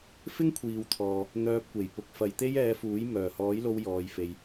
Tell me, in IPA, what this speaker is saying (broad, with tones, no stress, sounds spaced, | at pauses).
f ɪ˥ ŋ kʷʰ iː˨ w t̪ʰ ɔː˨ | n̪ œː˧ p̚ kʷ e˨˩ j p ʊ˧ k̚ f ɐ˨ j t̪ e˥ j ɛː˧ f uː˨˥ j m œː˨˩ h ɔː˨˥ j l o˧ w j ɔː˨˧ j f e˧ j